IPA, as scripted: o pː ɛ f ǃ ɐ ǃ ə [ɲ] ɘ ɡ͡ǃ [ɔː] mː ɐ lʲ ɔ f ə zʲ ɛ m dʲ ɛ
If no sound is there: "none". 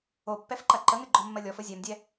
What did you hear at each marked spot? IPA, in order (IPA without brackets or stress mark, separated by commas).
ŋ, ɔ